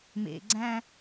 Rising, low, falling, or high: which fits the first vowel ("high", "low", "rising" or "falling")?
low